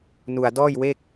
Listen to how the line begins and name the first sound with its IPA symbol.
n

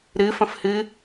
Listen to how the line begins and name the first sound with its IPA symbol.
ɾ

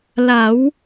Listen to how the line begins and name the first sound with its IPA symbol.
l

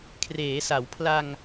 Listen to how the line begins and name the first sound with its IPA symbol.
kʰ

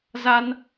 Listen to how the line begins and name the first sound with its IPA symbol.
z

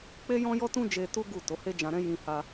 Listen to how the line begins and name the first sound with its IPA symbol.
k͡p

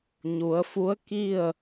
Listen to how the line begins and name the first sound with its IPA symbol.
ɲ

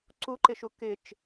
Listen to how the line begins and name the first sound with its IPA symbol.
ǀ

